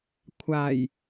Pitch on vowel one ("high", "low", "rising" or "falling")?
low